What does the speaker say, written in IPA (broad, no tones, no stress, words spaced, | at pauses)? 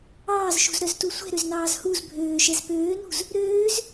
ɑːzʃṳzɾœztu sʷɛ̤ɾøznɑːz huz bʱøːʃɛz pøːnṳz | ɾøːz